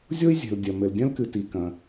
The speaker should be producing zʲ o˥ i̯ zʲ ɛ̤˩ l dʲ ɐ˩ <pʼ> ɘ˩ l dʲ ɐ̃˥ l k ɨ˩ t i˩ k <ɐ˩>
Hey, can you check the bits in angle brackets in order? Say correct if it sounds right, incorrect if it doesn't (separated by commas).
incorrect, incorrect